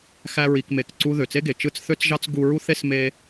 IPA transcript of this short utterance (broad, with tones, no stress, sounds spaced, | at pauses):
x æ˦ ɹ i˧ k m e˧ k ǀ u˧ ð ø˨ t͡s e˦ ɡ e˨ t͡ʃ ɯ˦ t͡s θ ø˦ t͡s ʒ ɑ˦ t͡s ɡ u˧ ɹ u˦ θ e˦ s m e˦